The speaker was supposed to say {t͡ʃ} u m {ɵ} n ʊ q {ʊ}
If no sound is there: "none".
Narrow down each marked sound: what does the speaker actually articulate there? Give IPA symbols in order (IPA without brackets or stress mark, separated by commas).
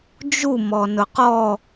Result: d͡ʒ, ɔ, ɔ